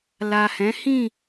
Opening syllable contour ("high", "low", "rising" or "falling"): low